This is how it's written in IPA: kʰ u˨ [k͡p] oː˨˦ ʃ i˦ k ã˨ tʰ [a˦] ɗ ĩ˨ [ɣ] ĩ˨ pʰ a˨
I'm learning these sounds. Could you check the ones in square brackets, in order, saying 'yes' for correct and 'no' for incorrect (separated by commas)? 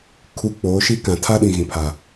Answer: yes, yes, yes